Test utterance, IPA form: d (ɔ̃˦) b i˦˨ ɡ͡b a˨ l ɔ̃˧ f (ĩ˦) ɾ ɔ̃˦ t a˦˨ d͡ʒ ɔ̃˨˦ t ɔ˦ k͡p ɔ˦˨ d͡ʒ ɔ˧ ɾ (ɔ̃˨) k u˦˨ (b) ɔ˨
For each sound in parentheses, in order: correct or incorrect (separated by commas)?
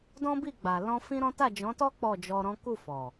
correct, correct, incorrect, incorrect